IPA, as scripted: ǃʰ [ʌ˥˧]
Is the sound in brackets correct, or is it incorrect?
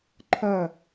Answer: correct